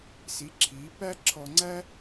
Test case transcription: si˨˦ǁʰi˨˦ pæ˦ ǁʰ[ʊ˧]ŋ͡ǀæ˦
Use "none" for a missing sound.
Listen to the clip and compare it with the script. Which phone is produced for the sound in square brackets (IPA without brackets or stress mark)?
ɔ˧